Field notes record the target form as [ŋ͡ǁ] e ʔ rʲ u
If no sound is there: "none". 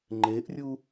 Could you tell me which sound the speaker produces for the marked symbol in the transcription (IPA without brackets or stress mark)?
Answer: ŋ͡ǃ